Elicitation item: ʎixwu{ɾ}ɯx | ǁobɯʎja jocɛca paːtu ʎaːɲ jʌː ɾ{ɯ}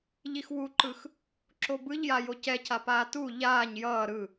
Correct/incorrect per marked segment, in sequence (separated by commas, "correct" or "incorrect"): incorrect, correct